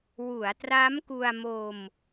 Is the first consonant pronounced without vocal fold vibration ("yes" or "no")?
no